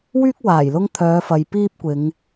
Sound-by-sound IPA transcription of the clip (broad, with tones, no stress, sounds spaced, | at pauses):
w yː˥ k̚ w aː˨˩ j l ʊ˥ ŋ t̪ʰ œː˨˧ f ɐ˨ j p iː˥ p̚ kʷ ɪ˨˧ ŋ